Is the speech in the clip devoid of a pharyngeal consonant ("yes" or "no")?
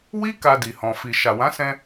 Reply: yes